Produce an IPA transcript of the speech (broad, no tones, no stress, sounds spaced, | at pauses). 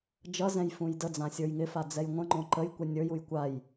d͡ʒ ʌ z ɛ̃ j f ũ j d ə d͡z ã sʲ ə˞ j ŋ ɪ f a d͡z ɛ j ŋʷ ə̃ ŋ͡ǃ õ ǃ ə j kʷ e nʲ ə˞ j u j kʷ a j